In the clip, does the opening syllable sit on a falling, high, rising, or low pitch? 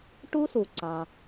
high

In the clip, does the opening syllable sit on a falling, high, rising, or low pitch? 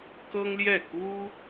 high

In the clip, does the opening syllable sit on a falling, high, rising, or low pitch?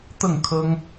falling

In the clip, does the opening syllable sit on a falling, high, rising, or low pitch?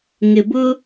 low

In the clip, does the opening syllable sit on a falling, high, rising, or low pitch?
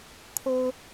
low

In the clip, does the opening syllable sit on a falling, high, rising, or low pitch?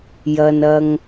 low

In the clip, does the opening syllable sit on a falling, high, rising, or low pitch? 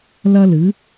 high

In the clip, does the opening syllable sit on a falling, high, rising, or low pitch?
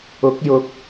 rising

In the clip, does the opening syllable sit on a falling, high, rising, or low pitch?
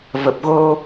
low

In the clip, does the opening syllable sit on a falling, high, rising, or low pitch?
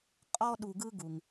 high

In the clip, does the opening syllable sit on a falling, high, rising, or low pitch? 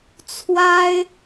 high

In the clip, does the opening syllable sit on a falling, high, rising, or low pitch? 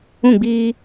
falling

